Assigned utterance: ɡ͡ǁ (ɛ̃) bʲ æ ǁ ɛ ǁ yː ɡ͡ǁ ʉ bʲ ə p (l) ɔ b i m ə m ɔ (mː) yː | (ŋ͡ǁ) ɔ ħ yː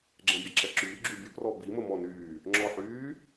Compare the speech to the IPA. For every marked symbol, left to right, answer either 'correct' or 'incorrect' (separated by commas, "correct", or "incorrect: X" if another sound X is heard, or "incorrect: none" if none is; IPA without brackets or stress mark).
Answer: correct, incorrect: r, incorrect: n, correct